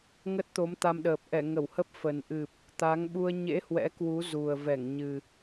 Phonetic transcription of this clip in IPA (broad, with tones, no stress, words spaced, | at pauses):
ŋə˦˥t̚t̪o˨˦mt̪a˧mɗəː˨˩p̚ ʔɛ˧˩ŋə˧˩whə˦˥p̚ fə˨˩n ʔɨ˨˩p̚ | t̪a˨˦ŋɓu˧ə̯ ɲḛ˧˥ hwɛ̰˧˥kwu˨˦ zu˨˩ə̯ vɛ˧˩ŋɲɨ˨˩